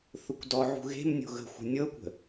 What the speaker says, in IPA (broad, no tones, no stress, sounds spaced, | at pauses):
θ ʊ kʷ d ɔ ʕ ṳ ɣ e̤ m nʲ o̤ ɣ ə̤ xʷ ə̤ nʲ ɤ kʷ ə̤